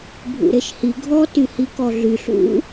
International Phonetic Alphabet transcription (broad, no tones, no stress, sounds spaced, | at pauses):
bʱ ṵ ɾ e ʃ h i ɡʱ ɔ t y h i k ɔ ɮ y ɬ ṵ